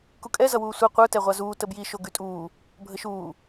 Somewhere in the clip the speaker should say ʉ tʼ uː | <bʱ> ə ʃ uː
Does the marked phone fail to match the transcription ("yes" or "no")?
no